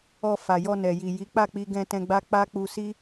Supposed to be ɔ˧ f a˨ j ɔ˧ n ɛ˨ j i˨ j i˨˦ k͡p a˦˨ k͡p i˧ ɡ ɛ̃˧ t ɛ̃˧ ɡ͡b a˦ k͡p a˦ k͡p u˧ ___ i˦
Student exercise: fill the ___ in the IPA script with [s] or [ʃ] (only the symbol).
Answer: s